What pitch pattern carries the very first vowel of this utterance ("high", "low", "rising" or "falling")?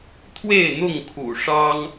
falling